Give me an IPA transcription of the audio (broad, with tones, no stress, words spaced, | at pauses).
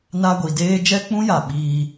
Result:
na˧ɡʷi˨ deː˧ d͡ʒɛ˦k͡pũ˦ja˨ ɓiː˧